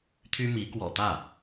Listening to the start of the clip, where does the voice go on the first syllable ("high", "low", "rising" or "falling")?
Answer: high